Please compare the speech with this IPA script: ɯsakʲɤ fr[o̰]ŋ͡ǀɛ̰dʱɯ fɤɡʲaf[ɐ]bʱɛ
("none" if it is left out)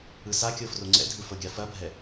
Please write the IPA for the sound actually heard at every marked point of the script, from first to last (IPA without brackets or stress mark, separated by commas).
o, ɐ